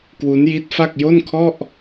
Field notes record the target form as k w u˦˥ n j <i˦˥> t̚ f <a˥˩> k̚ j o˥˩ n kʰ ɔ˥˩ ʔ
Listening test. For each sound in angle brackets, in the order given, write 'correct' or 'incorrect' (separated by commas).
correct, correct